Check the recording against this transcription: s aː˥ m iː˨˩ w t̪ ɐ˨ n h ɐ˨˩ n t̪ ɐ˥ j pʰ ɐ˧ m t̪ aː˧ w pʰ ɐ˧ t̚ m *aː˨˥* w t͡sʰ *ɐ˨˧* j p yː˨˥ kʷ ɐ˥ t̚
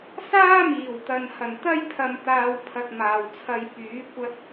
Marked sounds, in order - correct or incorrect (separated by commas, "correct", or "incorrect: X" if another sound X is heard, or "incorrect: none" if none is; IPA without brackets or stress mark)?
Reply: incorrect: aː˨, incorrect: ɐ˧